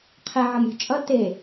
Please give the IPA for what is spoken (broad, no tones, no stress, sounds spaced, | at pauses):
qʰ ɛ ʕ ʌ m ɾʲ ṳ t͡ʃʼ ʌ t e